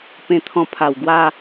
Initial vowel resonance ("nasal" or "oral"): nasal